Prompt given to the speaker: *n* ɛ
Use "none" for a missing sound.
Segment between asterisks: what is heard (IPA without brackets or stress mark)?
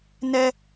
n